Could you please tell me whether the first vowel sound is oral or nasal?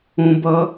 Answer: nasal